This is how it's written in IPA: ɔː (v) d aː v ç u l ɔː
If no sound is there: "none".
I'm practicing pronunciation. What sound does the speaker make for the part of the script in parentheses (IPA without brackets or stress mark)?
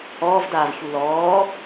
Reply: v